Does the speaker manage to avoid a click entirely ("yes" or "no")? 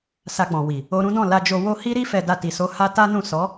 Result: yes